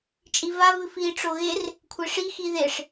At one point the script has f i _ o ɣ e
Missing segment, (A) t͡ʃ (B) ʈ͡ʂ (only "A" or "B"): B